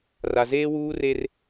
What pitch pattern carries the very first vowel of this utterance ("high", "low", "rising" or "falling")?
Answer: low